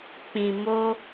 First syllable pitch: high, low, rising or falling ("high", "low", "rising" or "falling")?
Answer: low